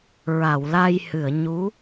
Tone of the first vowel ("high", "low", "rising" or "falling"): low